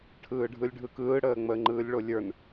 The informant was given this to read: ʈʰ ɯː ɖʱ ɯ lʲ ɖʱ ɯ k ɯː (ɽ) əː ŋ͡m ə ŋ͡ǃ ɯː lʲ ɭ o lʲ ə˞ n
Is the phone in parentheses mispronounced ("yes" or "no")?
no